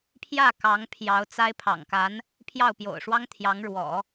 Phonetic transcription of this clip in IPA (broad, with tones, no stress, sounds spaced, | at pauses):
pʰ j ä˥˩ k ɑ˧˥ ŋ pʰ j ɑ˧˥ ʊ̯ t͡s a˥ ɪ̯ pʰ ɑ̰˨˩ ŋ k a˧˥ n | pʰ j ɑ˥˩ ʊ̯ p j o̰˨˩ ʊ̯ ʂ w ɑ˥ ŋ t̪ʰ j ɑ˧˥ ŋ ɻ w ɔ̰˨˩˦